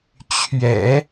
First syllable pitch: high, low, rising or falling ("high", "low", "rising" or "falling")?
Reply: low